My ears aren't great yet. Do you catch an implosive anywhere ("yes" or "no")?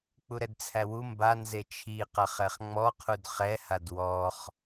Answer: no